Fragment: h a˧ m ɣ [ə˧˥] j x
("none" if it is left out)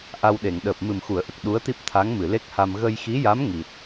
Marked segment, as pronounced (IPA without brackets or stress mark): ə˧